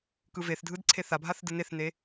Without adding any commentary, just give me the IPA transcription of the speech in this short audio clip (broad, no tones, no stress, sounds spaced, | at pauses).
k ɯ v e θ dʱ ɯ d ǀʰ e θ a bʱ a θ d ɯ n e θ n e